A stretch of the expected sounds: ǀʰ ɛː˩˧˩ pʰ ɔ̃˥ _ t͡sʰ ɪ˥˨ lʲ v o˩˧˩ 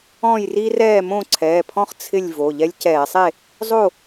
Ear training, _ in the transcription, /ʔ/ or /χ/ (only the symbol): χ